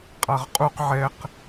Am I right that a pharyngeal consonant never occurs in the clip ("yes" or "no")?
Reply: no